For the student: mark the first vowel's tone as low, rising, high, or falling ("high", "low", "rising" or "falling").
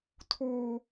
high